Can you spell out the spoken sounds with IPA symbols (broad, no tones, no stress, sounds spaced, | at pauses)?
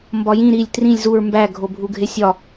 m b ɒ j ĩ ɾ i lʲ t r ĩ lʲ z u ɹ m b æ ɡʱ o bʱ u ɡʱ e sʲ ɒ